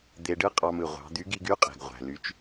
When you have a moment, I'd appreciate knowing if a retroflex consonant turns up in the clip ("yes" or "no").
yes